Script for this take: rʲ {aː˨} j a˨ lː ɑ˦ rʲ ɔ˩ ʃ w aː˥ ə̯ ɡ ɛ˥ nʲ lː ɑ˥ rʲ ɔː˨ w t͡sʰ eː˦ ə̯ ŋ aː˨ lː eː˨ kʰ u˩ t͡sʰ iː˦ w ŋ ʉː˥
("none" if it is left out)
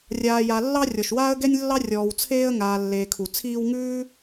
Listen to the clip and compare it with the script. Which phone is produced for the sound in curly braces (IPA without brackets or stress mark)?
aː˨